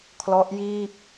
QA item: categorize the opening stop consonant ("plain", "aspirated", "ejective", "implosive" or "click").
aspirated